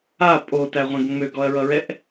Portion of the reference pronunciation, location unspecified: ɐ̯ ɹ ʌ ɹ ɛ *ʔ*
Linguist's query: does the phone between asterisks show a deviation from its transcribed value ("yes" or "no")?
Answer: no